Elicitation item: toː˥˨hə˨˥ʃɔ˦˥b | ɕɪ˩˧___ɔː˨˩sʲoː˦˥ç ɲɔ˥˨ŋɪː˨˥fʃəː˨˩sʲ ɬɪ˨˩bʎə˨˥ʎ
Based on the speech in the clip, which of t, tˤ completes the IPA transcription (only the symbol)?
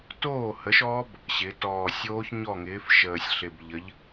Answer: t